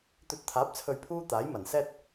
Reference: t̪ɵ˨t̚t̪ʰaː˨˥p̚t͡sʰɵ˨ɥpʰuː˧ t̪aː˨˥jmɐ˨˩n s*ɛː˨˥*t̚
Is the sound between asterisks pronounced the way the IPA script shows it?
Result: no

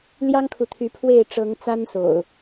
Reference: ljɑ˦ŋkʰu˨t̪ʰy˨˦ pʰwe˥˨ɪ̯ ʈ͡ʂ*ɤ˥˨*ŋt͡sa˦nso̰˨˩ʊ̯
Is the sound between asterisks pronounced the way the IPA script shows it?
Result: no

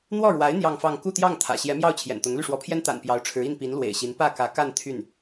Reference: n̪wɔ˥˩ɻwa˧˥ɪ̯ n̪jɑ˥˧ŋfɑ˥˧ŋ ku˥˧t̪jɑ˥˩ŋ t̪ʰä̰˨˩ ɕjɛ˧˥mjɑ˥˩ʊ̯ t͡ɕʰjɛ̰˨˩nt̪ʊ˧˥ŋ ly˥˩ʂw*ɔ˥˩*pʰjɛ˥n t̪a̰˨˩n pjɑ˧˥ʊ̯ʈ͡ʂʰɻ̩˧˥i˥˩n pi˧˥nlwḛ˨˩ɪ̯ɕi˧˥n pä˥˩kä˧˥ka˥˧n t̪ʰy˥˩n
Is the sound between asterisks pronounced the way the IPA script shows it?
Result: no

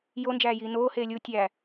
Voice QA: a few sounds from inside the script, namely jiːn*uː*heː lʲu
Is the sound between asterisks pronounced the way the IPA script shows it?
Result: no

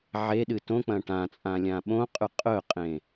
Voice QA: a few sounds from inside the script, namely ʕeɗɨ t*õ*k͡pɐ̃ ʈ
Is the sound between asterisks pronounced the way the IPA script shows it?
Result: yes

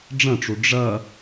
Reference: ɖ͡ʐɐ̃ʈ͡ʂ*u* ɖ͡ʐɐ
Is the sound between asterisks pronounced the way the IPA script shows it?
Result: yes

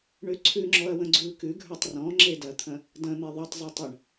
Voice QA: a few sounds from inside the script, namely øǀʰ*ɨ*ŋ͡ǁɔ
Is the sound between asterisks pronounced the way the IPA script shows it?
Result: no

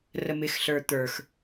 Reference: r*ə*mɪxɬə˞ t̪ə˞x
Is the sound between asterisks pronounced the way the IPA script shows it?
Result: yes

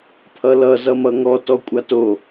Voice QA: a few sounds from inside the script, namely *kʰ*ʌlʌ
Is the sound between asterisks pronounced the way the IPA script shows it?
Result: no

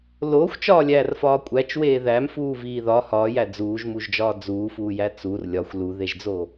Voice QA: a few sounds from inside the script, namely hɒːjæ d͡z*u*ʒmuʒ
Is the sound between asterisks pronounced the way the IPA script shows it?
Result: no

